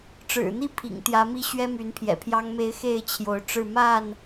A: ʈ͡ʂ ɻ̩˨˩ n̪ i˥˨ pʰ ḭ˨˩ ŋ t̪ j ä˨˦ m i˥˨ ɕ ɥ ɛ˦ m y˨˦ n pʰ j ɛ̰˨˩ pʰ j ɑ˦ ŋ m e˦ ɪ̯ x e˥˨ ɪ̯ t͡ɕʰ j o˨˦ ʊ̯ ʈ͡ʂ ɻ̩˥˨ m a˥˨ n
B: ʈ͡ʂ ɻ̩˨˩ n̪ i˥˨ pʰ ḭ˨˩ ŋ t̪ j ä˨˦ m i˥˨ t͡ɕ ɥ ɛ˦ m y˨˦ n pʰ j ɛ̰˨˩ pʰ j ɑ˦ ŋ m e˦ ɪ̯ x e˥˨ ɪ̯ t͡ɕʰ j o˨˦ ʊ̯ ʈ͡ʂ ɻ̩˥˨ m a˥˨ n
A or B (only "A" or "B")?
A